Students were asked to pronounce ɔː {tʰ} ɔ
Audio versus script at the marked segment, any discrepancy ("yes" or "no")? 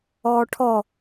yes